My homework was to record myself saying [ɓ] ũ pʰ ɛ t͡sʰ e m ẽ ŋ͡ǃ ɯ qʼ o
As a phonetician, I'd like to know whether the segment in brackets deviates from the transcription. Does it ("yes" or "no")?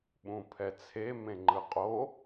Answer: no